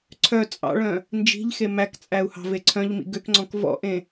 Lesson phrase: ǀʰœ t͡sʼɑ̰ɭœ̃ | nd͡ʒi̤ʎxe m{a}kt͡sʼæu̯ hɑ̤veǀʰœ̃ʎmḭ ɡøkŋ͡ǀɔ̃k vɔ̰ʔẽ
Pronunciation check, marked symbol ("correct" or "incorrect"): incorrect